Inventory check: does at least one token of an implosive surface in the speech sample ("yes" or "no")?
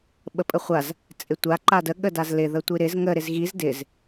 yes